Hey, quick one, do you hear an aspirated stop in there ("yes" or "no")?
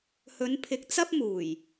yes